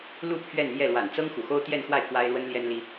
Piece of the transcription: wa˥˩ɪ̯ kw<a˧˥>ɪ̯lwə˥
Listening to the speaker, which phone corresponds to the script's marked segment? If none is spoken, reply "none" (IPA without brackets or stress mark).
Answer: a˥